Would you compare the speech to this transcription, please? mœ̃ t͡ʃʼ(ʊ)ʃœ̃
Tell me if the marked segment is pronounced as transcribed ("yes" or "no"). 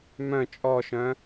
no